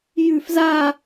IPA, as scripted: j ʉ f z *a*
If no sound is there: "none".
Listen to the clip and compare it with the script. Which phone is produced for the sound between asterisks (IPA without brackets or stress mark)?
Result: a